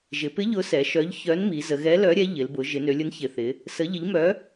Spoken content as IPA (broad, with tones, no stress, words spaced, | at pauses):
ʒɪ˩˧pɪ˨˥ ʎʊ˨˥sɛ˩˧ʃœ˨˥ʎ çœ˨˥nmi˩˧ zə˩˧ɣɛ˨˥lœ˨˥ɾʲɛ˨˥ ʎɪ˩˧lbʊ˩˧ ʒɪ˩˧nø˩˧lʲʊ˨˥n çɪ˩˧θɪ˩˧ | sə˨˥ʎɪ˨˥ʎmœ˨˥